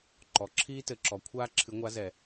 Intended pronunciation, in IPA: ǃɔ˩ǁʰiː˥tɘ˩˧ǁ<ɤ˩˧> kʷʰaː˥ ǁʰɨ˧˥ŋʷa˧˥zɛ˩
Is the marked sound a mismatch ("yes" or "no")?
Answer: yes